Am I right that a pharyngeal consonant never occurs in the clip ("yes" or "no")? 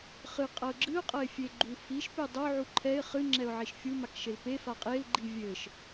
no